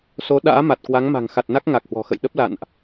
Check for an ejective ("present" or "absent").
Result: absent